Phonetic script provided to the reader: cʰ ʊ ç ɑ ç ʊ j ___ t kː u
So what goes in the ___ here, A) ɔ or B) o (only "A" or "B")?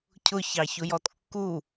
A